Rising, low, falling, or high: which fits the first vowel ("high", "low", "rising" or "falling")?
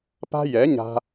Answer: high